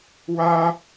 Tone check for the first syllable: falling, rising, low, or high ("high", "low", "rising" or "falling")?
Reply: high